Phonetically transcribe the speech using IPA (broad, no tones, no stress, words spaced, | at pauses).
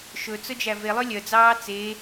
ʃɵt͡sɵd͡ʒæ velˠø lʲœd͡zɑː t͡se